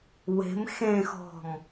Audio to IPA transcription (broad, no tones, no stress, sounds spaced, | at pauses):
w e̤ m x ẽ x ɔ̤ m